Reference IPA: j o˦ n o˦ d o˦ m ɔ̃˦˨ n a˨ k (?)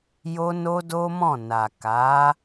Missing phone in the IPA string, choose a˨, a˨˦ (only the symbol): a˨˦